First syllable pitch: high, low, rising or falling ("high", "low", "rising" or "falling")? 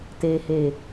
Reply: low